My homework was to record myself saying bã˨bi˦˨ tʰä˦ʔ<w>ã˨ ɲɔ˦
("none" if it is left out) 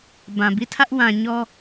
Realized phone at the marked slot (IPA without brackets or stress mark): w